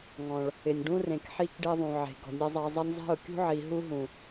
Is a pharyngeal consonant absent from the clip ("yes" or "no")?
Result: no